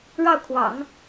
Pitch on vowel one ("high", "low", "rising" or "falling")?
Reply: falling